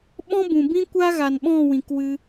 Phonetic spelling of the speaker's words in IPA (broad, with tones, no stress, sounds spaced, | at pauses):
ɓ ɔ̃˦ b ũ˨ b ĩ˦ kʷ a˦ ɣ a˨ n ɓ ɔ̃˦˨ w ĩ˨ k w ɨ˧